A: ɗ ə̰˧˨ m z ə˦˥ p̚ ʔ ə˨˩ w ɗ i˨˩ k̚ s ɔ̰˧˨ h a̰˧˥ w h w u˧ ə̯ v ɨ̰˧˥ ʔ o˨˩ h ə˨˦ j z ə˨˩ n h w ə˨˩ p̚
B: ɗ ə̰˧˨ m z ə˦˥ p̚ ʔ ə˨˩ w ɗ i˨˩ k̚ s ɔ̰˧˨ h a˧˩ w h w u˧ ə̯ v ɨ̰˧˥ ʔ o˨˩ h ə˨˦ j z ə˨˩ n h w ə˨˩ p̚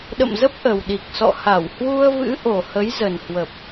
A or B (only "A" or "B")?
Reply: B